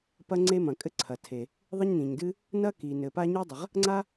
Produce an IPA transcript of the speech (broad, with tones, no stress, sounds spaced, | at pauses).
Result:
p ɐ˥ ŋ͡ǀ e˥ m ɐ̃˩ kʼ ɘ˥ ǀʰ ɐ˩ tʰ e˩ | ðˤ ɘ˥ ɲ n ĩ˩ ɲ d ɨ˥ | n ɐ˥ k i˩ n ɘ˩ p a˥ ɲ ɨ˥ dˤ ɘ˩ ʁ | ŋ͡ǀ a˥